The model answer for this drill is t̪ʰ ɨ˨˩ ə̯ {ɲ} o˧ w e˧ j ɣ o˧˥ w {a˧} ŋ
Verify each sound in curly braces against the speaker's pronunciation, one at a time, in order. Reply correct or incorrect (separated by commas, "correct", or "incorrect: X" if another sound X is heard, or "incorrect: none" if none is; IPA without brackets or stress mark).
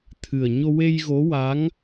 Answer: correct, incorrect: a˧˥